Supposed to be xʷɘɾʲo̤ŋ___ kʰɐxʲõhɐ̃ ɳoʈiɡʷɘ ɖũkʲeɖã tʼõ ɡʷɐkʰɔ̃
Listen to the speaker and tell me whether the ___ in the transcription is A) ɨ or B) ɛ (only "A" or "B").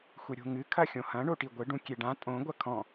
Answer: A